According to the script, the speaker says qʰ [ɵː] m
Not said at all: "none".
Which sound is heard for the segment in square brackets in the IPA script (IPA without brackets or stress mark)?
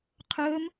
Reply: ɵː